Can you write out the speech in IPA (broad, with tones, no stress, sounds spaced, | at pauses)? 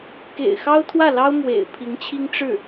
k ḛ˨˩ ɪ̯ x ɑ˥ ʊ̯ t̪ʰ w ä˥˩ l ɑ˥ ʊ̯ m w ḛ˨˩ ɪ̯ pʰ i˧˥ ŋ t͡ɕʰ i˥ ŋ ʈ͡ʂ ɻ̩˥˩